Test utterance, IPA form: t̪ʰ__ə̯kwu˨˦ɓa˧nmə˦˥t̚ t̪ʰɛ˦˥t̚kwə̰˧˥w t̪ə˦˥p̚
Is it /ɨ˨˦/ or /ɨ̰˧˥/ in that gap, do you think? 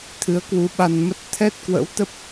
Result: ɨ˨˦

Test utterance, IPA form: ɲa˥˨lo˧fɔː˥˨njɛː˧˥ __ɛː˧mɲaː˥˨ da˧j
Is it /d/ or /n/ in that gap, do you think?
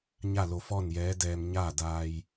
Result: d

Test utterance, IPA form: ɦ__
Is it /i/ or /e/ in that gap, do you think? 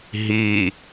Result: i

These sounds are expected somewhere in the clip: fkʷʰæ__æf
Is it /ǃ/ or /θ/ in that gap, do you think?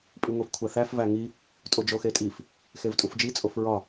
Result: θ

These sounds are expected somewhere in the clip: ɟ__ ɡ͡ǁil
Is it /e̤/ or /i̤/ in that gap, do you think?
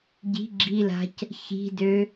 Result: i̤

